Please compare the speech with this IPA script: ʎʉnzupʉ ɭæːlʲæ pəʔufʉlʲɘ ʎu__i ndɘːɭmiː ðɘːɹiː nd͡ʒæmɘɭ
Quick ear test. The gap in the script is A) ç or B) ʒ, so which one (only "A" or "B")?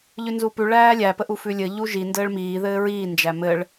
B